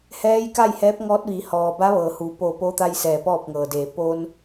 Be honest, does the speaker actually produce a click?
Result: no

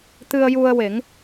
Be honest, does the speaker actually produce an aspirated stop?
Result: no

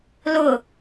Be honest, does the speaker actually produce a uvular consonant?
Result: no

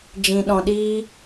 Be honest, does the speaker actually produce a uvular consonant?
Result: no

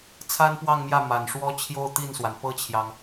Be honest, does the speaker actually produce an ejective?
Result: no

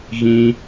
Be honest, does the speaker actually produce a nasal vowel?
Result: yes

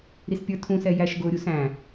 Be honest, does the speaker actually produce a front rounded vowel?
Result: no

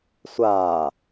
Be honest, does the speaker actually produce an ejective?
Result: no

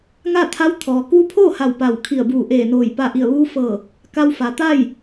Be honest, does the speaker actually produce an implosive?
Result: no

